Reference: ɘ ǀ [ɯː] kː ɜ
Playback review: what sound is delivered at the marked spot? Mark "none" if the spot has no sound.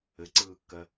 ɯː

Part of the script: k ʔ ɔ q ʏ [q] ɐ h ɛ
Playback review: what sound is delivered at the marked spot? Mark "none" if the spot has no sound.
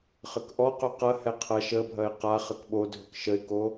q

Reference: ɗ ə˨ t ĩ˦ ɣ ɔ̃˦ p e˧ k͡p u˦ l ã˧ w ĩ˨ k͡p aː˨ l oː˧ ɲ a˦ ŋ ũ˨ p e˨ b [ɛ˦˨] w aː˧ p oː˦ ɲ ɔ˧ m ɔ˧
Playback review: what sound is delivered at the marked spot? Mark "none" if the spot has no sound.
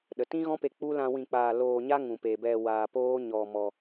ɛ˧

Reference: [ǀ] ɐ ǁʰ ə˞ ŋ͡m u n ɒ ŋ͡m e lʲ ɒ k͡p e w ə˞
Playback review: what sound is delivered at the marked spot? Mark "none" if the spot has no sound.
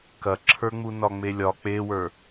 k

